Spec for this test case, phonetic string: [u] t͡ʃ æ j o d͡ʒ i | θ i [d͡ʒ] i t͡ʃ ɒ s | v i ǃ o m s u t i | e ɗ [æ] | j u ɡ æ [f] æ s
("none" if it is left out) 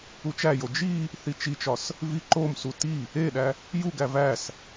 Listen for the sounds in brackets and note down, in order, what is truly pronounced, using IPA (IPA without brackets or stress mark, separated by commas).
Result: u, t͡ʃ, æ, v